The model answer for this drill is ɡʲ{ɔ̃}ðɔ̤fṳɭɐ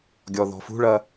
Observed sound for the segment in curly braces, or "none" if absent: ɔ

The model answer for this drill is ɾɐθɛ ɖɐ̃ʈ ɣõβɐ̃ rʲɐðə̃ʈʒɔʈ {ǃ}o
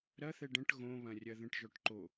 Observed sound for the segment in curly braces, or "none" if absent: ǃ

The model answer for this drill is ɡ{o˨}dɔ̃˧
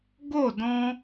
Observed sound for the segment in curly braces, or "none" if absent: o˦˨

